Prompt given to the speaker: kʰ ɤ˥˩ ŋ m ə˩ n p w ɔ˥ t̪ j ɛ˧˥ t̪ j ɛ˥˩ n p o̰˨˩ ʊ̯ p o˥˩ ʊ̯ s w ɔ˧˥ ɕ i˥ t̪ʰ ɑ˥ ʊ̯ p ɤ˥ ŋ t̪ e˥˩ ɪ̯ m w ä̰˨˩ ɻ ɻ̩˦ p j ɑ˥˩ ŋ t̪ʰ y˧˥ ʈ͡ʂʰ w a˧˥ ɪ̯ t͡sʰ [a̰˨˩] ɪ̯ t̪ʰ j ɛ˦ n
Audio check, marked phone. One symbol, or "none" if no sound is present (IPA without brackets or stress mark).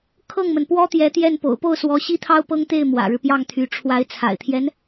a̰˨˩